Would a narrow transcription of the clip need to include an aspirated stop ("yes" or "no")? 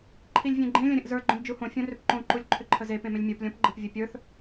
yes